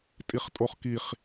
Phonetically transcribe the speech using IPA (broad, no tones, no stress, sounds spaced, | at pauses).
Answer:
tʼ i χ tʼ o χ k i χ